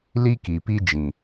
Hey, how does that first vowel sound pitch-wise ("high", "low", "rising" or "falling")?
high